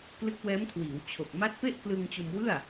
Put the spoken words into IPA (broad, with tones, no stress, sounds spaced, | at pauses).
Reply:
k l ɯ˦˥ k̚ w ɛː˦˥ m kʰ w iː˩˦ w t͡ɕʰ o˨˩ k̚ m a˦˥ t̚ p e˥˩ ʔ k l ɯ˧ ŋ t͡ɕ o˧ m w ɯ˥˩ a̯